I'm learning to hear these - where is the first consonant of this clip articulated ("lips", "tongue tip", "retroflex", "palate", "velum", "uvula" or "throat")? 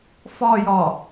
lips